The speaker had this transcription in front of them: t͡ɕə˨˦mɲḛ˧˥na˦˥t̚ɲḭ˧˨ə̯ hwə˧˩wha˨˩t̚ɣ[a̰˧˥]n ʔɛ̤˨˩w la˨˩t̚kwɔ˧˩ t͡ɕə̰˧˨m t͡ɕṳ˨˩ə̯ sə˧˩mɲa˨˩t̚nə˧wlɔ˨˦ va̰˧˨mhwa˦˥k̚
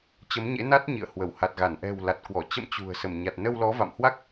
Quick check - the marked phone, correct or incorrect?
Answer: incorrect